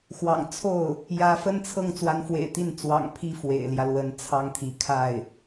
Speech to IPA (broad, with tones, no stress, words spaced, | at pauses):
xwɑ̰˨˩ŋt͡sʰo˥˩ʊ̯ | jä˧˥fə˥nt͡sʰɤ˥˩ŋ t͡swa˧˥nfwḛ˨˩ɪ̯t̪i˥˩n t͡swɑ̰˨˩ŋ pʰi˥ fwḛ˨˩ɪ̯ljä˦lwə˧˥n t͡sʰɑ˥ŋt̪ʰi˧˥ kʰa˥˩ɪ̯